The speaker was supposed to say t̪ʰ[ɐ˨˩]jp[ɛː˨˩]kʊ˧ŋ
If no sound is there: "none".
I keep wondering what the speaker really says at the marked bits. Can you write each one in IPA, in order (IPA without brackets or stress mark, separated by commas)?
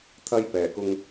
ɐ˥, ɛː˨˩